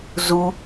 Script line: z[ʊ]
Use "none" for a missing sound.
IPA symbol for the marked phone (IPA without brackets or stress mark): u